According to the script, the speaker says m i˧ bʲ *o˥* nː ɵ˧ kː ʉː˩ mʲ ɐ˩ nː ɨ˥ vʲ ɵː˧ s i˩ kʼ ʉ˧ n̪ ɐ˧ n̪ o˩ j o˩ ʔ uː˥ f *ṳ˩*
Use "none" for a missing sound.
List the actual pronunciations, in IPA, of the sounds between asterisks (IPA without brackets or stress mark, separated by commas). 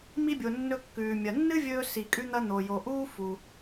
o˩, u˩